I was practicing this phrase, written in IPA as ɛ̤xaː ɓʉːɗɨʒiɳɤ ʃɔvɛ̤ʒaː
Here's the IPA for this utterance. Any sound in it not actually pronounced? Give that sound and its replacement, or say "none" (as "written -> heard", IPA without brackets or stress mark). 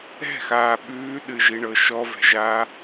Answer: none